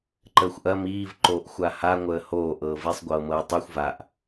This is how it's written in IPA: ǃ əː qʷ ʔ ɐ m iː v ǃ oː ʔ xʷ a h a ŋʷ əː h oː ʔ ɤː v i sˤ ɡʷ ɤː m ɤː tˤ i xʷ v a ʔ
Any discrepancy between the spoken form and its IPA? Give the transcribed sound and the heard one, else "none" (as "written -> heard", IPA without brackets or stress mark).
qʷ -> xʷ